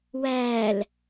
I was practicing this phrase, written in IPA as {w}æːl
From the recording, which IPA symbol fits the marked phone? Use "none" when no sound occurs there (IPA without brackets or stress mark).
w